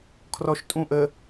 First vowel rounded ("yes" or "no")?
yes